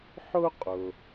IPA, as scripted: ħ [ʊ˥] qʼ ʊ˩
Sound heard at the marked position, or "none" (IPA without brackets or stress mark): ʊ˥